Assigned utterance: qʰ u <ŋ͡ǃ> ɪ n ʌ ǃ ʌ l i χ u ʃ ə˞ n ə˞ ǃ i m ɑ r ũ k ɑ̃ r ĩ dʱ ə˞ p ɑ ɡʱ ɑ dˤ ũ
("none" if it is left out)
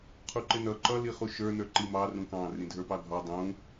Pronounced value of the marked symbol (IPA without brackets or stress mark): ǃ